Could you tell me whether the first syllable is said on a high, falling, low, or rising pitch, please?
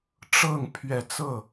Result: falling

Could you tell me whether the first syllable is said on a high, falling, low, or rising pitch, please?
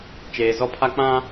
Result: low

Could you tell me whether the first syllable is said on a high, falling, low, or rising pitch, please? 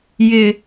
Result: high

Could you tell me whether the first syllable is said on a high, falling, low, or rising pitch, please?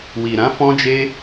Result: low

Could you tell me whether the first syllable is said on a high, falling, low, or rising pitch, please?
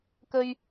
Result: high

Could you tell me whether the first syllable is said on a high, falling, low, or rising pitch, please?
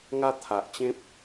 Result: high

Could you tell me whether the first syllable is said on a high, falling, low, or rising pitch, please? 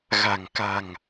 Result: low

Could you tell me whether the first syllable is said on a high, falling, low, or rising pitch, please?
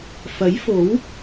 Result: rising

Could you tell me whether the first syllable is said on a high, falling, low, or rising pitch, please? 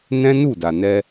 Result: high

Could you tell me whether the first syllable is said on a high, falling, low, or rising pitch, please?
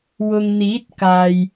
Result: low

